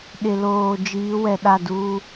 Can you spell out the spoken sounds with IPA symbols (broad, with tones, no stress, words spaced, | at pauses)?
ɗɪ˨loː˨ d͡ʒiː˨˦wɛ˨ ɗa˦˨duː˦